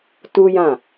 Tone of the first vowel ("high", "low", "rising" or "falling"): high